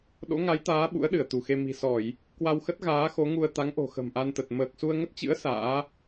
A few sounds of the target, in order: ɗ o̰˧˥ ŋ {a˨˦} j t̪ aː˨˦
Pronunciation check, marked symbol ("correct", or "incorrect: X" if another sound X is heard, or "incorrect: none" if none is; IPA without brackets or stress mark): correct